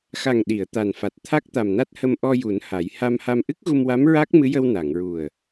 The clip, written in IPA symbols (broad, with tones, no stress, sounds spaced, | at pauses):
x a˨˩ ŋ ɗ i˨˩˨ ə̯ t̪ a˨˩ n f a˨˩ t̚ t̪ʰ a˦˥ k̚ t̪ a˨˩ m n a˦˥ t̚ h ə˧ m ʔ ɔ˧ j u˨˩˦ n h a˨˩˦ j h a˧ m h a˧ m ʔ ɨ˦˥ k̚ ɣ u˧ m w a˧˥ m ɹ a˦˥ k̚ m ɨ˧˥ j ə˧ w n a˨˩˨ ŋ ɹ u˨˩ ə̯